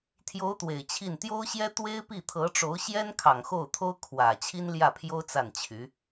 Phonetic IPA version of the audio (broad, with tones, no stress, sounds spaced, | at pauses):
t̪ʰ j o˧˥ ʊ̯ t̪ w e˨˩ ɪ̯ t͡ɕʰ i˥˩ n t̪ j o˥ ʊ̯ ɕ j ɛ˥ t̪ w e˥ ɪ̯ p i˥˩ t̪ʰ ɤ˧˥ ʈ͡ʂ o˧˥ ʊ̯ ɕ j ɛ˥ n kʰ ɑ˨˩ ŋ x o˥˩ ʊ̯ t̪ʰ o˥ ʊ̯ kʰ w ä˨˩ t͡ɕʰ i˥ n l j ä˥˩ pʰ j o˥ ʊ̯ t͡s a˥˩ n t͡ɕʰ y˧˥